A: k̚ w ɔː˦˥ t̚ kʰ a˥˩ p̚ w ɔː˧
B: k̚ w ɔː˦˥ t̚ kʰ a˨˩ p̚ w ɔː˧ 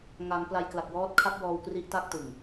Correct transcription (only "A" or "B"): A